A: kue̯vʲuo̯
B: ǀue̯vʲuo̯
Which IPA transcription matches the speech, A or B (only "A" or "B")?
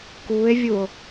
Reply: A